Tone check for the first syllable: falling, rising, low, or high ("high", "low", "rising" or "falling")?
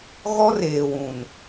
high